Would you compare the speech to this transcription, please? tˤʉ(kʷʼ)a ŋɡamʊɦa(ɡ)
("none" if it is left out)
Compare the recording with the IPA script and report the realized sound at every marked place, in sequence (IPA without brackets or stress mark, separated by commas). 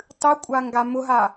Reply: kʷʼ, none